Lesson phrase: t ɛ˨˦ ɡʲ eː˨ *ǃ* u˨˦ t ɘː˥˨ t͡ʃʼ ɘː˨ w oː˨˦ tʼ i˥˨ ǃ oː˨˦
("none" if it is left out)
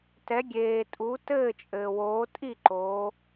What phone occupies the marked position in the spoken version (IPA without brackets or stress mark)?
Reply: tʼ